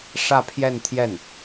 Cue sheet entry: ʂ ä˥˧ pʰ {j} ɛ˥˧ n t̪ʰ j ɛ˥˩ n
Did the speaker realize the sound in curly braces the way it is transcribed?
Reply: yes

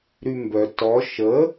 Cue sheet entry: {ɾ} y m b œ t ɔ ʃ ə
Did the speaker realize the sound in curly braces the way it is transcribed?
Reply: yes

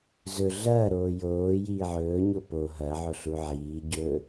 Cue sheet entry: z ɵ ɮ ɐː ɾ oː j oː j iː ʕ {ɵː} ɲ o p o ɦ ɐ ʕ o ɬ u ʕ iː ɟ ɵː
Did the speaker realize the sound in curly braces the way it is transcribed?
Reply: yes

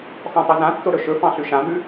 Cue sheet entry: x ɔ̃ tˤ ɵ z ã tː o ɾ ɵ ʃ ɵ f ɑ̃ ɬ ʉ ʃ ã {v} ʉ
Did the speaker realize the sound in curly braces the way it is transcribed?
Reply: yes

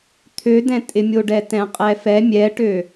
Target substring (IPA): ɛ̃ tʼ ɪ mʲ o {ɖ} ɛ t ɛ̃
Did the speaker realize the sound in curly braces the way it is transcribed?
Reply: yes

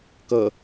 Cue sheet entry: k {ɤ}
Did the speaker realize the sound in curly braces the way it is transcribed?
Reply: yes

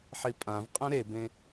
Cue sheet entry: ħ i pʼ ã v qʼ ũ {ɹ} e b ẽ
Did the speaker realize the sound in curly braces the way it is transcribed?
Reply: no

